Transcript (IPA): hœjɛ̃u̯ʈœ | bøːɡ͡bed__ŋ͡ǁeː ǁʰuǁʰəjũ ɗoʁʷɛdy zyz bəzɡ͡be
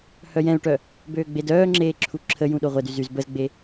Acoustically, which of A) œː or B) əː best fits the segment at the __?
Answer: A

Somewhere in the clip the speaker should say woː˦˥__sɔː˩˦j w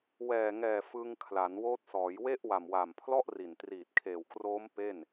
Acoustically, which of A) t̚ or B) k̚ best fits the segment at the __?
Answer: A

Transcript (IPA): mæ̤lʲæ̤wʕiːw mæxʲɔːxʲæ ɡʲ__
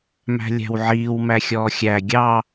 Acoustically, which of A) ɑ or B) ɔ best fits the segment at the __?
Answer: A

